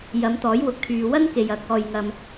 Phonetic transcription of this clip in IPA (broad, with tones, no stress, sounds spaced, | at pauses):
j ɐ˨˧ m t̪ ɔː˨˥ j w ʊ˨˥ k̚ t̪ʰ yː˨ w ɐ˥ n k e˨ j ɐ˨˥ k̚ ɔː˨ j ŋ ɐ˨ m